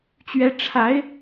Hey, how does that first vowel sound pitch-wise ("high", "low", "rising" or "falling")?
high